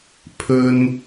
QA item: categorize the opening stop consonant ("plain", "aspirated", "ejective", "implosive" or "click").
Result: aspirated